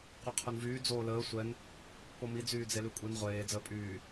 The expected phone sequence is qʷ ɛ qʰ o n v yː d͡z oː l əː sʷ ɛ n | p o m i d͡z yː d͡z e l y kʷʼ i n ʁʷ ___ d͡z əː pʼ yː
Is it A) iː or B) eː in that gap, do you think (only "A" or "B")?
B